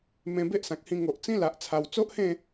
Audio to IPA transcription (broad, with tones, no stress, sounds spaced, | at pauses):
m ẽ˧ b e˦ ʔ s ã˨ k̚ h ĩ˧ ŋ o˨ ʔ t͡s ĩ˦ l a˨ ʔ t͡sʰ a˨˩ w t͡s o˦ ʔ h ẽ˥˧